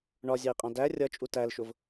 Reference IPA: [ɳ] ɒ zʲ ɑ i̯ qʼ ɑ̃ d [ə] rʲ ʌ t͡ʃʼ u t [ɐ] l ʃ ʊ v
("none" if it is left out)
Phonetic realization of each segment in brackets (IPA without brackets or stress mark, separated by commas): ɳ, æ, æ